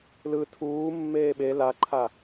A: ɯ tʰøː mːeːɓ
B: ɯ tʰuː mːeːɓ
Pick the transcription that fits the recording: B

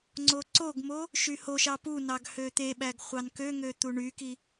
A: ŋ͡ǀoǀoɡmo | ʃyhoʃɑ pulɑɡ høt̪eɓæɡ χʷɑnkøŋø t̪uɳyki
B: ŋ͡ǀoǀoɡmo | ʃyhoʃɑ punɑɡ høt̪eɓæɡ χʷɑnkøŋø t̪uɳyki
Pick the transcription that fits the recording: B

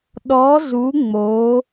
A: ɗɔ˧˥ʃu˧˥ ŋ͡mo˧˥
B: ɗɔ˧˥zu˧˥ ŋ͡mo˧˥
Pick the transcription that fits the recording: B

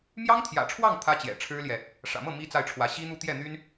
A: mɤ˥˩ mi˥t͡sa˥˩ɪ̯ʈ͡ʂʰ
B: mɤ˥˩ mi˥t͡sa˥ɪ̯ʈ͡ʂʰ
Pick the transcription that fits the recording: A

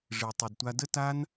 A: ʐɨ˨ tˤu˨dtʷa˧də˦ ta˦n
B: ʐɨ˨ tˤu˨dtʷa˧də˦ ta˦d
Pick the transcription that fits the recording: A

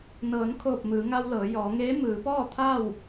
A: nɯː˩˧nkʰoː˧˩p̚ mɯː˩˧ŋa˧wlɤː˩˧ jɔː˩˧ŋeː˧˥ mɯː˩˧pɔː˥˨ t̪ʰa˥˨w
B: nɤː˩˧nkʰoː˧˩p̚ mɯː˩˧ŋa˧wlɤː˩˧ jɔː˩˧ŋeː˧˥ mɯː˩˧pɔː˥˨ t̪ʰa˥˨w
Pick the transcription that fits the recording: B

